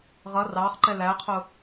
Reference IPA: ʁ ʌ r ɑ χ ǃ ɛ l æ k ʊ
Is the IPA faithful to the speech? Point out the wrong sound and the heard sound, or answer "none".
k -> qʰ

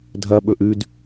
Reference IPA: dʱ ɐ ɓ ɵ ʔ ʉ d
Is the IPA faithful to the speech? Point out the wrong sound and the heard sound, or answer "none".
none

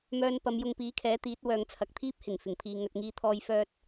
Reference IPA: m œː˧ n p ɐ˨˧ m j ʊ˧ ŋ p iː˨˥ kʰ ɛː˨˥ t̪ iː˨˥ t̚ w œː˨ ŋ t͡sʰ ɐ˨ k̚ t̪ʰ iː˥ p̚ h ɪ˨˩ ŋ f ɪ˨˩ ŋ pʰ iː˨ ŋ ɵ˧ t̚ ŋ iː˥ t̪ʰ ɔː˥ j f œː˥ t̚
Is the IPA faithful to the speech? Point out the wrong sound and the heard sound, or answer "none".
none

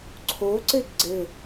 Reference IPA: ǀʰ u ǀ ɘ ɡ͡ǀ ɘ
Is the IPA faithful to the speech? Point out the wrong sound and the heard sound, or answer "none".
u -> o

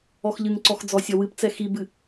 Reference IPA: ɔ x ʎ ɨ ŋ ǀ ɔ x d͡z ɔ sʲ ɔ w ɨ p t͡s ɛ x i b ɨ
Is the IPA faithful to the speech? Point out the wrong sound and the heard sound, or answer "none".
none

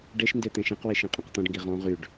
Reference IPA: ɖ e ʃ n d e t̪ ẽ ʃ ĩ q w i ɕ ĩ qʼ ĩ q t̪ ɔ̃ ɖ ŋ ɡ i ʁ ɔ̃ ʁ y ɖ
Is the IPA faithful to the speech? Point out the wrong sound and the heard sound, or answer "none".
ɕ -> ʃ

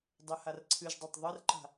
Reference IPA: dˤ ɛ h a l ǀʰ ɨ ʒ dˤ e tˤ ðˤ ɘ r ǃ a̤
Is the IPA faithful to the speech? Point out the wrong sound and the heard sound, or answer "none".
l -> r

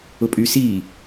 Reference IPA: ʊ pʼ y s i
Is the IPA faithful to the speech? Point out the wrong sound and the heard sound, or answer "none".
none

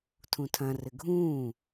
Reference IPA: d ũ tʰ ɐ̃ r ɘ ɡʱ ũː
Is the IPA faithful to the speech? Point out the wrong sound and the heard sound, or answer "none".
d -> tʰ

